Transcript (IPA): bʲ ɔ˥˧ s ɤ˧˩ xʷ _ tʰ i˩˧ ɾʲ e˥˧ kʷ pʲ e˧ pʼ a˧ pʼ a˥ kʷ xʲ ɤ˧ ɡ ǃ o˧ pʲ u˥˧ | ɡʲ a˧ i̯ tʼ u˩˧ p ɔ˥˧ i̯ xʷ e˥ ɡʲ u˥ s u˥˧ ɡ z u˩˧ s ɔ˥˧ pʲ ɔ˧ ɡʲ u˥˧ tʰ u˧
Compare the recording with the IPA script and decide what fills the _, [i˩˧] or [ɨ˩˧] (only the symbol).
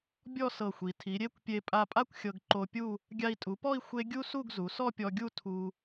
i˩˧